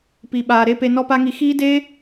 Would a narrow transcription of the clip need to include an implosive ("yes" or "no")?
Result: yes